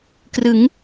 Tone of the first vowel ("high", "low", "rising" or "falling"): rising